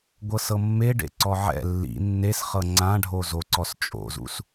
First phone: ɡʷ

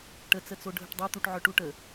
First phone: ʈ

